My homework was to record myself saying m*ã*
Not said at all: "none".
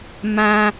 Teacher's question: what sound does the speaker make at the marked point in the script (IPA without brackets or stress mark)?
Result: ã